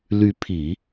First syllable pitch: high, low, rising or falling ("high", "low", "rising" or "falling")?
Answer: rising